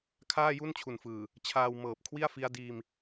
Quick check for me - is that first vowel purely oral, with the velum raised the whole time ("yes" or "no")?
yes